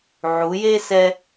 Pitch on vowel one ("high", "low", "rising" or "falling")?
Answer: rising